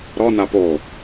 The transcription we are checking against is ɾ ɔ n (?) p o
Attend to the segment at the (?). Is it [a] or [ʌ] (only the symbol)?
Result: a